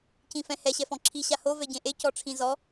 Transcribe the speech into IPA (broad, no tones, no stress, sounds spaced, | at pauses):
c ĩ f ɛ̃ h ɛ ɕ ɛ f ɔ̃ ǁʰ i ɕ a h o v ɛ ɟ ẽ ʔ e c ɔ ʈ͡ʂʰ ĩ z ɔ